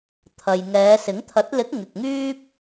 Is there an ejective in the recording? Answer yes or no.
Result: no